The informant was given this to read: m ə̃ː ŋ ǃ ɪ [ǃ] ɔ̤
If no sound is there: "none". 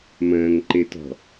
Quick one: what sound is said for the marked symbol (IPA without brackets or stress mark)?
t